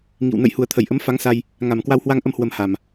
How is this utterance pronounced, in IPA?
ŋ ḭ˧˨ w n ə̰˧˨ j h u˨˩ ə̯ t̪ʰ ə˧˩ j ʔ ə˨˦ m f a˨˦ ŋ s a˧ j | ŋ a˨˩ m k w a˧ w h w a˧ ŋ ʔ ə˧ m h w ə˧ m h a˨˩ m

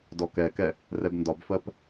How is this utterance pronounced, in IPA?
d ɔ k ɛ k ɛ | r ɛ b n d ɒ b f ɜ p

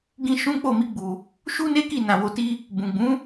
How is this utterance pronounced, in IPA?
ɡ ĩ˧ ʃ ũ˦ k͡p o˦˨ m i˧ ɡ͡b u˨ | ʃ u˦ n e˦ k i˦˨ n ã˨ w o˧ t i˦ | b ũ˨ ɡ͡b ũ˨˦

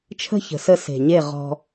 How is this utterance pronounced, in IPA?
t͡ʃʰ ə̤˦ ç ə̤˨ s ə˧ s e̤˨ ɲ e˦˨ ʁ ɔ̤˧

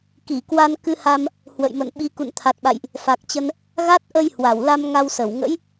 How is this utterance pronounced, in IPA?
k i˧˩ k w a˧ n k ɨ˧ h a˧ m | h w ə̰˧˨ j m ə̰˧˨ n ɓ i˨˦ k ṵ˧˨ n t̪ʰ a˨˩ t̚ ɓ a̰˧˨ j ʔ | f a˨˩ k̚ t͡ɕ ə˧ n | ɣ a˦˥ t̚ ʔ ə˧ j h w a˧˩ w l a˧ m ŋ a˧ w s ə˧˩ w ŋ ə̰˧˥ j

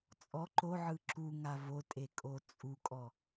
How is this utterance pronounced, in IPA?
t͡sʼ ɔ ǃ o ʕ ɯ ǁ u ŋ a v o tʼ e kʼ o t͡sʼ u kʼ ɔ

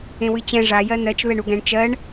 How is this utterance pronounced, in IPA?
ẽ w ɨ t͡ɕ ɛ̃ ʐ a j ɜ n ɜ t͡ʃ β ɛ ɳ u ɡ ɛ̃ ɳ t͡ʃ ɜ ɳ

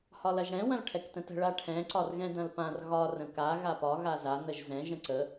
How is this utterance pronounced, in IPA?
h ɒ l ɐ ʒ ɽ ɛ̃ w ɐ̃ l ʈʰ ɛ k t ə̃ t ə̤ ɭ a ʈʰ ɛ̃ ǀ ɒ r ɣ ɛ̃ d ɐ̃ l p ã r ɣ ɒ r ə̃ k a ɣ a p ɒ ɣ a z a n ə ʒ z ɛ̃ ʒ ə̃ ǀ ə

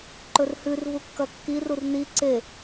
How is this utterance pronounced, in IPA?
ǃ ɵ r h ʉ r v u kː ɐ kː i r u r n i ǀ e

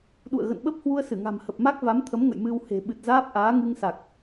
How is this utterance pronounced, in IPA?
ɗ ṵ˧˨ ə̯ ɣ ə̰˧˨ n ɓ ə˦˥ p̚ h w u˧ ə̯ s ɨ˧˩ ŋ a̤˨˩ m h ə˨˩ p̚ m a˦˥ k̚ v a˨˦ m t̪ʰ ə˨˦ m ŋ ə̰˧˨ j m ɨ˧ w h e̤˨˩ ɓ ɨ˨˩ t̚ z aː˦˥ p̚ ʔ aː˨˦ ŋ ɨ˧ ŋ s a˨˩ k̚

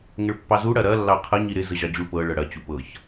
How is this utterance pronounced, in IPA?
ŋ ə ɭ pː ɑ z u ɽ ɐ ɾ ɐ lː ɑ qʰ ɐ ɲ i ɾ ɪ z ə ʑ ɑ d͡ʑ u ɭ p ɤ ɭ ɤ ɽ ɐ t͡ɕ u p ɤ ç

